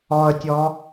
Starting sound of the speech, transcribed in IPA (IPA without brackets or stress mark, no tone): ɔ